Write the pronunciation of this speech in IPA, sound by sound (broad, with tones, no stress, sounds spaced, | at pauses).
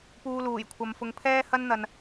p uː˧ l uː˨˩ j kʷʰ ɐ˨ m f ʊ˨ ŋ pʰ ɛː˥ h ɐ˥ n n̪ ɐ˨ n